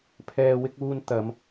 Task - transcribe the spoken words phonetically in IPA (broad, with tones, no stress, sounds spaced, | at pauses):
pʰ ɛː˨ w ɪ˧ k̚ uː˧ n t̪ ɐ˨˧ m